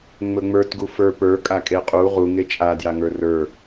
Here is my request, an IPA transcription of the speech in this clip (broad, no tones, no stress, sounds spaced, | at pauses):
ŋ͡m ɵ ŋ͡m ə˞ t ɡ u f ə˞ p ə˞ kʼ a kʼ e qʼ u ʁ u ŋ e t͡ʃʼ a d j a ŋ ə˞ r ə˞